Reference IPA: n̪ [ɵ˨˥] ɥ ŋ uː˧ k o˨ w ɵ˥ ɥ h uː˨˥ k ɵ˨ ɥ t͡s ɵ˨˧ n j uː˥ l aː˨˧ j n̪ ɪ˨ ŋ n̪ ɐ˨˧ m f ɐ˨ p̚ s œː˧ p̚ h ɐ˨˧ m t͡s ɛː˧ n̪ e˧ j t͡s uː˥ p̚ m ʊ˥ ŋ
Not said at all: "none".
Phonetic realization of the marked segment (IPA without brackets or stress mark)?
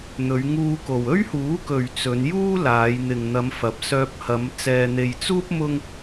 ɵ˨˧